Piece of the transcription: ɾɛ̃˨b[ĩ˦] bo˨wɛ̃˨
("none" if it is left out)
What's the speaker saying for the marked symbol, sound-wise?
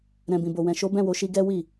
ĩ˨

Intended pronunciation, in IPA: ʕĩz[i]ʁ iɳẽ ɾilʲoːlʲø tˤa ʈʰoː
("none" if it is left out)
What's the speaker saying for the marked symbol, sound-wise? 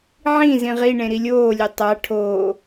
ĩ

